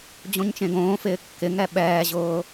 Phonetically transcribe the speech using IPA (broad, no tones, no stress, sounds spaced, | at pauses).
d͡ʑ õ ɲ t͡ʃ ẽ ɡ õː f ɪː kː ɪ ŋ ɛ ɓ ɛː ʑ ʊː